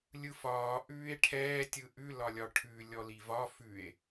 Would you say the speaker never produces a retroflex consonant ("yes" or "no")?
no